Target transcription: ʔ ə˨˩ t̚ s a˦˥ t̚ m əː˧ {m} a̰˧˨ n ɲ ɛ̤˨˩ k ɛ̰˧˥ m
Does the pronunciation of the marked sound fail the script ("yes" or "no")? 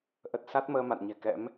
no